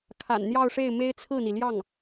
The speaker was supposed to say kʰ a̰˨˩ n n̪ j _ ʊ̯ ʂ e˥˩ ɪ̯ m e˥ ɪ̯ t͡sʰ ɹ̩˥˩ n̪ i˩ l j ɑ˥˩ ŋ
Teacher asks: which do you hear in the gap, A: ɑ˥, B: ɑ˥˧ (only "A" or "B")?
B